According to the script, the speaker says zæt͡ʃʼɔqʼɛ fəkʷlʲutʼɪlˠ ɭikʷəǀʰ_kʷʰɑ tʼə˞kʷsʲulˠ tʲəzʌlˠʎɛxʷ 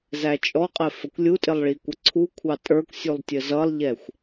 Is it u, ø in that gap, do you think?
u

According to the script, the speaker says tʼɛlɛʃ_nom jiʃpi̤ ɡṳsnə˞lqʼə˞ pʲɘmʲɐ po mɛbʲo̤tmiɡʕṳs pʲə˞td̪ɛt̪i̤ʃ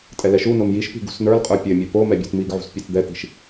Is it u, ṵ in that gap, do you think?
u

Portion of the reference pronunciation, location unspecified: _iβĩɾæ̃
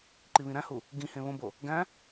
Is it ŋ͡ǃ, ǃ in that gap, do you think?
ǃ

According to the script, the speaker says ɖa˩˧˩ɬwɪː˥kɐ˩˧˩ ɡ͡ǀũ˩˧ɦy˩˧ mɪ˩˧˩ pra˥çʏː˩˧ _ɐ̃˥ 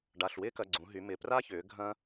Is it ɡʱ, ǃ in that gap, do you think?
ɡʱ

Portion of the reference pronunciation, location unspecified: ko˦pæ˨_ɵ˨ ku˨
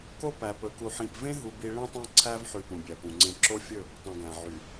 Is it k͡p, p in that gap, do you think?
p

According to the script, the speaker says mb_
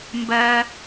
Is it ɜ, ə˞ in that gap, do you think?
ɜ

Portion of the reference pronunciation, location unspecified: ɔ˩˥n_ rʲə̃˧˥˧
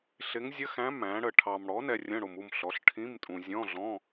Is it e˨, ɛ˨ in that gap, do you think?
ɛ˨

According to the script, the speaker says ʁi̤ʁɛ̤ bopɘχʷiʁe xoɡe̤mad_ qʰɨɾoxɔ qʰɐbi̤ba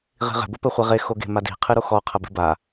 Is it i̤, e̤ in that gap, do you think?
i̤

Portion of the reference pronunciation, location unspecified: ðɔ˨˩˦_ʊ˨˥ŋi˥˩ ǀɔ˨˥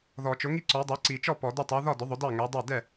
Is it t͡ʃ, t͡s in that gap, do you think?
t͡ʃ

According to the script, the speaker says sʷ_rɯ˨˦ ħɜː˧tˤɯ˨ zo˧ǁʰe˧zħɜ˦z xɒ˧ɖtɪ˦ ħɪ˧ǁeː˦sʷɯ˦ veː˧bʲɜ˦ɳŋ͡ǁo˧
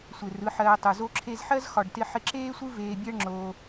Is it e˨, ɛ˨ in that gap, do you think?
e˨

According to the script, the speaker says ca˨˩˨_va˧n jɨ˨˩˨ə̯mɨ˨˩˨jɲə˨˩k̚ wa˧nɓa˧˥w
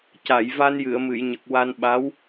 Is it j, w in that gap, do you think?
j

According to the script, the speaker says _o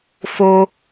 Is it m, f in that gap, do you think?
f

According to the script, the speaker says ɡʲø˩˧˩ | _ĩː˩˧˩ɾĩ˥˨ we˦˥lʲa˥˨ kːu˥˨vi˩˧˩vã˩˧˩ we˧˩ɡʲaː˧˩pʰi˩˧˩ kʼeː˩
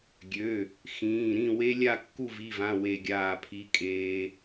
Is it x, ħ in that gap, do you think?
x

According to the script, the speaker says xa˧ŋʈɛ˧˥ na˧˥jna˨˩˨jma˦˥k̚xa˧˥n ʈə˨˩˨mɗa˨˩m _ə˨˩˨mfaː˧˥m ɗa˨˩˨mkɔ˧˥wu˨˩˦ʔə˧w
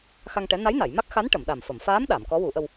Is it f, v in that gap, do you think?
f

